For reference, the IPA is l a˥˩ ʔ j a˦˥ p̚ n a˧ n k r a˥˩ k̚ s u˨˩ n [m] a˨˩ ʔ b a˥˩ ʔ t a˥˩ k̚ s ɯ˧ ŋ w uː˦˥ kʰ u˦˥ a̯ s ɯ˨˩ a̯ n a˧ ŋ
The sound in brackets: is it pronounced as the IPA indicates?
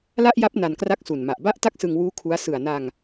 yes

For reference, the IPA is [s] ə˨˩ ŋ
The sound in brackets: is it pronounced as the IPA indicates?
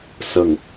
yes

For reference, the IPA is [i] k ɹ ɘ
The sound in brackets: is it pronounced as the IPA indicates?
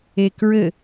no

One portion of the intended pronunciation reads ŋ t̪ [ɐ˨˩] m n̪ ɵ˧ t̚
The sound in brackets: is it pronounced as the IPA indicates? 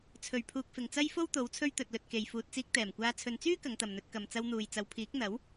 no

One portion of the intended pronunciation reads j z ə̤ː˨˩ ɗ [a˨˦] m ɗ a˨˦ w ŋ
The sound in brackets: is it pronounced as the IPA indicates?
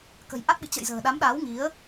yes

